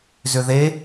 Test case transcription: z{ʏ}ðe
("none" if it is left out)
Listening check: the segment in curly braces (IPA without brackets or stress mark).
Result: ʏ